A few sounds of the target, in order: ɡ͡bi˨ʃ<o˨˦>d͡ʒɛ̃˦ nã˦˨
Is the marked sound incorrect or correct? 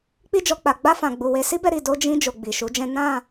incorrect